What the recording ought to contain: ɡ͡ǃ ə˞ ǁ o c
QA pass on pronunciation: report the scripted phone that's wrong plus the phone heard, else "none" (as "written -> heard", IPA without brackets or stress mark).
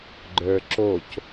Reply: none